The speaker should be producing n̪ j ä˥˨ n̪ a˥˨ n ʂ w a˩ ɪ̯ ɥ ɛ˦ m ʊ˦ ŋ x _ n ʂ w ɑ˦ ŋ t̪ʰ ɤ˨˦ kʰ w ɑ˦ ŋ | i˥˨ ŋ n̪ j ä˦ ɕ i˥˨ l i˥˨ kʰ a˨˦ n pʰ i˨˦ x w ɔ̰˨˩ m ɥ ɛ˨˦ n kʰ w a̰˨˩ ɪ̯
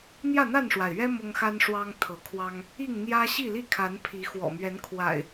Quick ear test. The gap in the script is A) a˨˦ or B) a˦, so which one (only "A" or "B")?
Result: B